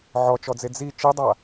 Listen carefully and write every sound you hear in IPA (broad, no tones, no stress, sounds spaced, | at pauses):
ʕ ɔ t͡ʃ ɔ d͡z e d͡z i t͡ʃ i dˤ a